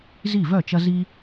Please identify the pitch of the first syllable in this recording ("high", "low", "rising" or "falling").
falling